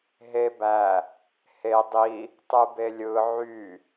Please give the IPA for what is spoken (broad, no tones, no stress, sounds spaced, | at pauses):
ɦ e b æ | h e dˤ i | tˤ ɯ b e lʲ ɯ ʕ y